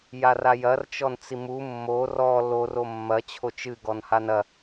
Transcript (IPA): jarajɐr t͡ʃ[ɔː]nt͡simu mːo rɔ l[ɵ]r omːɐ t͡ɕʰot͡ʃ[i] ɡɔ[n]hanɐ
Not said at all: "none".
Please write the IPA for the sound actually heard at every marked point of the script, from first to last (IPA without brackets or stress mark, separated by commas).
ɔ, o, ɨ, n